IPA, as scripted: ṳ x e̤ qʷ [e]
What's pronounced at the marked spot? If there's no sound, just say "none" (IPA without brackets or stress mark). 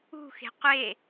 e